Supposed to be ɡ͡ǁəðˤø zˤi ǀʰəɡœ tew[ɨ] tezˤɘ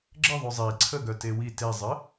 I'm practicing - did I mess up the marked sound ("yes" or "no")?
yes